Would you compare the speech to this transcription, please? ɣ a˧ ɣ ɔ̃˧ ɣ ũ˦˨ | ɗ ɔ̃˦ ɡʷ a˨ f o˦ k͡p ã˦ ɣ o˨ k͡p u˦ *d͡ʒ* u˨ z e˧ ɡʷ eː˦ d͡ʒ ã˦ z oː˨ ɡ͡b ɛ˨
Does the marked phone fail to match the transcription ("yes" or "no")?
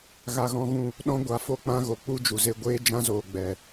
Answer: no